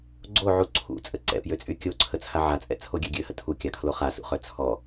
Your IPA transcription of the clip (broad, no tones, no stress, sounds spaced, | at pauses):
ɡ͡ǀ o ʕ u ǀʰ ṵ t͡sʼ ə ǀ ɛ̰ p j ø t͡sʼ y kʲ o ǀʰ ə t͡sʰ a ʕ a t͡sʼ ɛ̰ t͡sʰ o ɡʲ ø ɡʲ ø h ə tʰ u kʲ a kʰ l o χ a s ṵ χ œ t͡sʰ ɔ